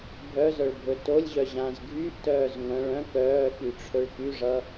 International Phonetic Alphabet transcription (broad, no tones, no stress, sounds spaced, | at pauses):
bʱ œ z œ ɭ bʱ ɵ t o lʲ ʑ œ ʑ ã z ɡʱ y ʔ t œː z ŋʷ œ̃ ɭ œ̃ k œː k y ʈ͡ʂʰ ɵ ɭ k y ʐ ʌ